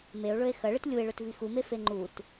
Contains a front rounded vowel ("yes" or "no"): no